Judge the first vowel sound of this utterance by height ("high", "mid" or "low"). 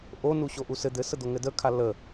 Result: mid